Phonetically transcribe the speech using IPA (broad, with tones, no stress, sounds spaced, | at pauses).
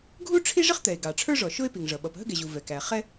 ɡʱ u˥ ʈ͡ʂʰ i˥ ʐ ɪ˥ χ t̪ ɛ˩ e̯ ɡ ɑ˩ ʈ͡ʂʰ ə˞˥ ʐ ɔ˩ ʃ ʊ˥ e̯ p i˩ ŋ ʐ ʌ˩ ɓ ʌ˩ p ɦ ə˥ ɡ ɛ˩ ʑ u˩ v ɛ˩ k æ˩ χ ɛ˥